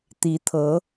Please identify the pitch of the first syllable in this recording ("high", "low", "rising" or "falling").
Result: rising